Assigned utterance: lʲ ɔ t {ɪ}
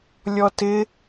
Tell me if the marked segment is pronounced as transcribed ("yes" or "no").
yes